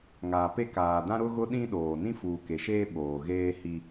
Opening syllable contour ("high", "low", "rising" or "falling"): low